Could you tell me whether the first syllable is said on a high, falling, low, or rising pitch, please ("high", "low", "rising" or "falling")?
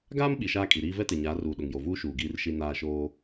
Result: high